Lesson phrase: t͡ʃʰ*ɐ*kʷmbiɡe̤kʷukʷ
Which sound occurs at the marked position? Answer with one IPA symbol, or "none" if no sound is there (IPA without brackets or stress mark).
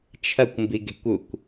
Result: ɐ